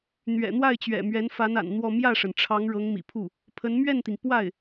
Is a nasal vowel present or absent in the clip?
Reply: absent